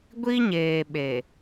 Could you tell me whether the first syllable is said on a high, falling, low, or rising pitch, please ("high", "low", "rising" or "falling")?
high